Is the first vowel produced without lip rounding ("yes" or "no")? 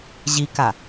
yes